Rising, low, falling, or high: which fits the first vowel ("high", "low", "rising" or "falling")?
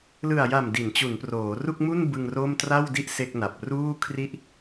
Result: low